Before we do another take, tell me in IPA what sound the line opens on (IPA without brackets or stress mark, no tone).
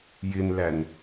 j